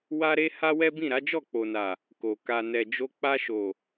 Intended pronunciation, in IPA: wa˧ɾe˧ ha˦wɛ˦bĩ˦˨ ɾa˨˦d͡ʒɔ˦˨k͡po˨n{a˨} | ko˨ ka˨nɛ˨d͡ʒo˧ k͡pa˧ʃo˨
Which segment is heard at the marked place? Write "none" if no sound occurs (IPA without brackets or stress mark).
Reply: a˨